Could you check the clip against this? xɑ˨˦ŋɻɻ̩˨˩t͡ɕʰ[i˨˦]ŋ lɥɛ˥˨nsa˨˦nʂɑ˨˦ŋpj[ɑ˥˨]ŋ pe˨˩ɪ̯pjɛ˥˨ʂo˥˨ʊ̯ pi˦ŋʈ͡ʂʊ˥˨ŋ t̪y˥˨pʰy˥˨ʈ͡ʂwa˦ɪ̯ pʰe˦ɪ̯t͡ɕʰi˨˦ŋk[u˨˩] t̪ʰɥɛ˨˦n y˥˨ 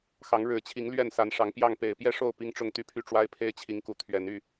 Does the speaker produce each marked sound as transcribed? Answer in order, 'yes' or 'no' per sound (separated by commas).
yes, yes, yes